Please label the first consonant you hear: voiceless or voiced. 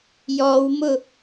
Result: voiced